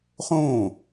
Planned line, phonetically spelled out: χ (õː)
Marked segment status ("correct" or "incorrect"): correct